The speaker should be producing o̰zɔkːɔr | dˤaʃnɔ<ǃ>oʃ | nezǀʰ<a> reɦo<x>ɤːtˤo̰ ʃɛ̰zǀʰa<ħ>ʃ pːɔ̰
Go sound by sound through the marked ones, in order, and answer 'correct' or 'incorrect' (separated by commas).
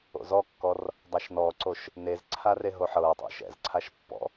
incorrect, correct, incorrect, incorrect